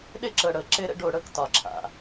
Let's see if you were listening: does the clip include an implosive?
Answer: yes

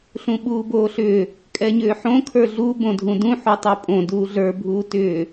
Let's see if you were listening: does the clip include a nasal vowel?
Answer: yes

